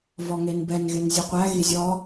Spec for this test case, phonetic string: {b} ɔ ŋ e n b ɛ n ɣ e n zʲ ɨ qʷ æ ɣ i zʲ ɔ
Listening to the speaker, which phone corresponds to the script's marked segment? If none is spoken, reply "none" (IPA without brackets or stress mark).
v